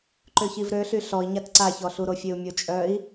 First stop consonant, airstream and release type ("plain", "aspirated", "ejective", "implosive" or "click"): click